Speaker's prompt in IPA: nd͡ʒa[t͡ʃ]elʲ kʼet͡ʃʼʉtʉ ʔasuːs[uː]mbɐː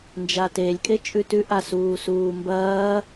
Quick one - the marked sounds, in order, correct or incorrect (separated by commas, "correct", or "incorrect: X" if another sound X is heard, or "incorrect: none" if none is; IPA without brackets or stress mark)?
incorrect: t, correct